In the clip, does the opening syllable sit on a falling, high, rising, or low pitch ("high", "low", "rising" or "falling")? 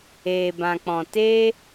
low